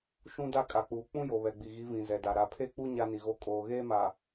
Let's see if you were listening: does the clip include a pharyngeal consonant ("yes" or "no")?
no